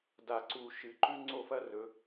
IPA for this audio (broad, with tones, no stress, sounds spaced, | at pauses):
d a˧˩ ǀ u˧˩ ʃ ɨ˩˧ ǃ ʉ˥ ŋ͡ǀ o˥˧ f ɐ˥ r ɵ˩˧